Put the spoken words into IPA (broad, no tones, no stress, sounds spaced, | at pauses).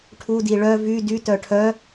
ʈʰ u d i ɭ œ v y d y t œ ʈʰ œ